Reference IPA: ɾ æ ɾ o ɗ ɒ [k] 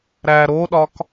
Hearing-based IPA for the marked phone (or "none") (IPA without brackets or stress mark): k